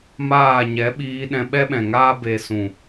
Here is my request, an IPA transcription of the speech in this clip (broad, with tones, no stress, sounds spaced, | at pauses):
m aː˦˨ ɲ ɛ˨˦ ɓ iː˧ ɗ ɛ̃˧ ɓ ɛ˦ ɓ ɛ̃˨ ŋ aː˦ b e˧ s ũ˨